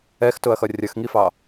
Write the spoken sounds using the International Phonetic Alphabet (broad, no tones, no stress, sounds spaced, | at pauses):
ɛ x t ʊ ɐ̯ x ʌ rʲ ʌ x ŋ i f ɑ